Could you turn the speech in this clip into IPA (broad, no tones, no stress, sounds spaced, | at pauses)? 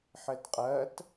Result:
ħ ɘ d qʼ ɜ t